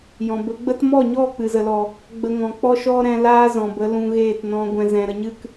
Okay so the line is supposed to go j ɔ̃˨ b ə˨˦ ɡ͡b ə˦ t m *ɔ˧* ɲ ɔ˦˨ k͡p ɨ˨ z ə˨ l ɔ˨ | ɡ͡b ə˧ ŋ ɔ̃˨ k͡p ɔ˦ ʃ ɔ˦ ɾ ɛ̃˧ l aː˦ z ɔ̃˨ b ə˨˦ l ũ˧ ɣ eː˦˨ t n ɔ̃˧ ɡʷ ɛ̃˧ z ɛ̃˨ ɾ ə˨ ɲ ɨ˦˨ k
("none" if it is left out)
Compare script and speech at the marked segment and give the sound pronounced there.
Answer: ɔ˦˨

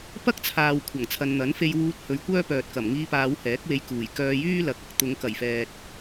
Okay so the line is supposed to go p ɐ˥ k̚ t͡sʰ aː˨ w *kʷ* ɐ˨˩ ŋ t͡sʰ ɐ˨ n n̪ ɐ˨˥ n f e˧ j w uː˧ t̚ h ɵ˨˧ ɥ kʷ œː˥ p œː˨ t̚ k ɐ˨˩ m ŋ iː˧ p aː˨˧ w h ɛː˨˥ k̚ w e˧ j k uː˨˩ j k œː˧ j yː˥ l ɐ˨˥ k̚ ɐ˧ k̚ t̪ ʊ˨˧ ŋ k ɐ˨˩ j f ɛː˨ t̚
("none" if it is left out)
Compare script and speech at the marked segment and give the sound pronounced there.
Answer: kʷʰ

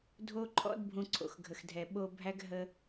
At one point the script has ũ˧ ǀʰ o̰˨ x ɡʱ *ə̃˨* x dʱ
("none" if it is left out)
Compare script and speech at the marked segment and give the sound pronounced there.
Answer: ə˨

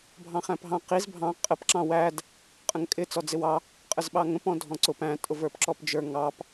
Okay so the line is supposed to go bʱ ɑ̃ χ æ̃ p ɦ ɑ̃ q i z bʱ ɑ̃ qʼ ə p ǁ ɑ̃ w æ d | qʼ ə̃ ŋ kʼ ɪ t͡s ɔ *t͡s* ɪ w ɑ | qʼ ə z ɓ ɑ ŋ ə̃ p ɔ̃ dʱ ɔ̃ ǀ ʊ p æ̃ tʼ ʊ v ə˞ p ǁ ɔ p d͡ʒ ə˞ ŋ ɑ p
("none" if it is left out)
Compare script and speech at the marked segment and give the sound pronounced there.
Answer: d͡z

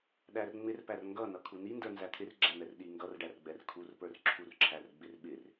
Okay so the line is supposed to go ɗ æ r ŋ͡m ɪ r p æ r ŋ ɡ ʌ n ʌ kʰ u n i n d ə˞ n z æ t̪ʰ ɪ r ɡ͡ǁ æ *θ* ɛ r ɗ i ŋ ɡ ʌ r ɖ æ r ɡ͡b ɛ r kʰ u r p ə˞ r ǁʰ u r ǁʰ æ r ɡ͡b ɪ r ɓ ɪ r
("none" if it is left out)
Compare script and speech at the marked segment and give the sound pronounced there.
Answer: n̪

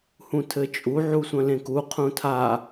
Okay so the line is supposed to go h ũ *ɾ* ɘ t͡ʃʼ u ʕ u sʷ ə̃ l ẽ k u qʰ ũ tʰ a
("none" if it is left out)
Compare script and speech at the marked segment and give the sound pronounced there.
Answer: tʰ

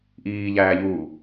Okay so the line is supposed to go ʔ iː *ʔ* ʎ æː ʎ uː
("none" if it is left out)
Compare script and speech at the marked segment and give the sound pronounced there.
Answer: none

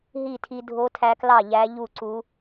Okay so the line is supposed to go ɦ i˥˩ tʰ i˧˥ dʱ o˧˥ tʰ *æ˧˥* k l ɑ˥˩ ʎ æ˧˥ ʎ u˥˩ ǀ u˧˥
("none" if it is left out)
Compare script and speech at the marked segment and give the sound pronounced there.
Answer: æ˧˥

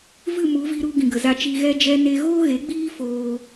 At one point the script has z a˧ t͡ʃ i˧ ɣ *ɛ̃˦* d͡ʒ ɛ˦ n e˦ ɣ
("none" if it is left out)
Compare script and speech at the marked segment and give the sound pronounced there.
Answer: ɛ˦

